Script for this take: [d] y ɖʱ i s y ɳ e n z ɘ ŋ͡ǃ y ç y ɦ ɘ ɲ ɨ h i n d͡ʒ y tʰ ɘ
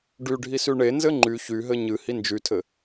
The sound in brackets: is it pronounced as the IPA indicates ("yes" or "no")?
no